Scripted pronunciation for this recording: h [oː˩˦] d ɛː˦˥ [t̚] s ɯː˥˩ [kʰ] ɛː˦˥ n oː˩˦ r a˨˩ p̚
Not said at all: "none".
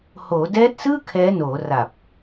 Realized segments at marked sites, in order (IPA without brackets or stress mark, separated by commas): oː˩˦, t̚, kʰ